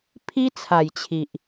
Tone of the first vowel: high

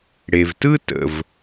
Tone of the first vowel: low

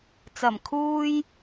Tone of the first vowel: low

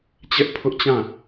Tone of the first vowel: high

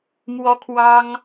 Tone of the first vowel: high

